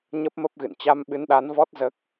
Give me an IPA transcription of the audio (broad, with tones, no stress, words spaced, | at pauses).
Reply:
ɲə˦˥p̚mə˦˥p̚ɣɨ̰˧˨n t͡ɕa˧mɓɨ˨˦nɗa˨˦nvɔ˦˥t̚ zəː˦˥k̚